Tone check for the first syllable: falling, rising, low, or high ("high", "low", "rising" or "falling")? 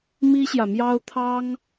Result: high